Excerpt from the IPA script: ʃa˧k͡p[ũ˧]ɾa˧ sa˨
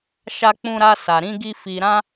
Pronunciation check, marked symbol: correct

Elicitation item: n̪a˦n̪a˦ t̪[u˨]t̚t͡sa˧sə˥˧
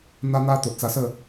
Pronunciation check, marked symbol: incorrect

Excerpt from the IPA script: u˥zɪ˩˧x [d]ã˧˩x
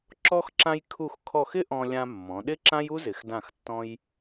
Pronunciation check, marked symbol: correct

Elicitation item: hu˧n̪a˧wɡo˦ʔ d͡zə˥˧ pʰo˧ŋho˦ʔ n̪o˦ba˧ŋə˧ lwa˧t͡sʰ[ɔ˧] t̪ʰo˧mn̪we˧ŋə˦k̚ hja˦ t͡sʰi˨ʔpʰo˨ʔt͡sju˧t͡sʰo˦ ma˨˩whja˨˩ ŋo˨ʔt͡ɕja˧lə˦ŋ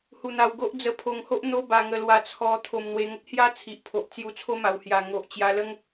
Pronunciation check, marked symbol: correct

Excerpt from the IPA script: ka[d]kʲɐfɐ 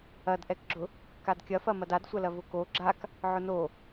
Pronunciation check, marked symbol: correct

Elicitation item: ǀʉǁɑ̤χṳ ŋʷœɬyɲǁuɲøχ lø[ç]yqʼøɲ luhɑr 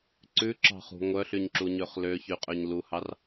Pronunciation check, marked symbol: correct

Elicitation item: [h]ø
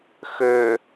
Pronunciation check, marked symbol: incorrect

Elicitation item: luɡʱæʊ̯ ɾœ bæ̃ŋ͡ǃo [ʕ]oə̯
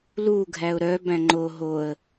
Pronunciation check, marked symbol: incorrect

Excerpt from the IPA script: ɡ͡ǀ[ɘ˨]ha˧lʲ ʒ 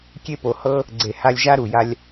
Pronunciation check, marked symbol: incorrect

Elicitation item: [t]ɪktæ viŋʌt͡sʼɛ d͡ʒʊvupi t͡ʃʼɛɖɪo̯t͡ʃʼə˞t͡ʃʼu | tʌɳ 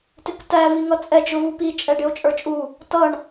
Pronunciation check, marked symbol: correct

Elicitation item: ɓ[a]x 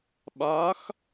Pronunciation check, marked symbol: correct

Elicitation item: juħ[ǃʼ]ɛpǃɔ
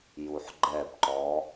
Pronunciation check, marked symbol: incorrect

